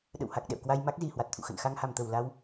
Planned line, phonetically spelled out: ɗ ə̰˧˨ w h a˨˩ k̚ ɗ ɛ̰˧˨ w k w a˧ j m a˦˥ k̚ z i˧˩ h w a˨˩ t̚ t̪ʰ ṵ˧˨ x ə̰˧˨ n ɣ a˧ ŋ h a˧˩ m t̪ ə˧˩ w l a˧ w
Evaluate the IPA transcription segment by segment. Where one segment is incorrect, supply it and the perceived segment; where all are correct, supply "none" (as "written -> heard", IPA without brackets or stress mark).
ɣ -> x